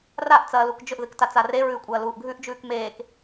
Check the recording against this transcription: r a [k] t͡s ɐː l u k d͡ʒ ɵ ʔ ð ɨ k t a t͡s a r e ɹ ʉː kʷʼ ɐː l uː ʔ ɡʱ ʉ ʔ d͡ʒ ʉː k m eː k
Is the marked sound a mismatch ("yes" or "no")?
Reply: yes